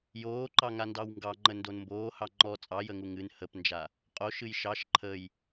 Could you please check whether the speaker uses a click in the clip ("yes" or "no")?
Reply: yes